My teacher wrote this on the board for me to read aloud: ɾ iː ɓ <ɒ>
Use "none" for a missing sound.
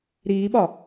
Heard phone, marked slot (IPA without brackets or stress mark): ɒ